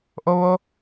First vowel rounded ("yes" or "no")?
yes